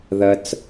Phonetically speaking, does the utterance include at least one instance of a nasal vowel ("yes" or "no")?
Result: no